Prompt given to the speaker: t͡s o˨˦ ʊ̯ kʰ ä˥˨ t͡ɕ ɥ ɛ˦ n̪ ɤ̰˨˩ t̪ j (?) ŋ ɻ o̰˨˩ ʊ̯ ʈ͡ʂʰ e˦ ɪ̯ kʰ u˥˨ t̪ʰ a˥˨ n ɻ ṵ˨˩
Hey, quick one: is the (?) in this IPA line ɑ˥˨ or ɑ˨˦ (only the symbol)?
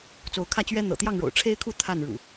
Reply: ɑ˥˨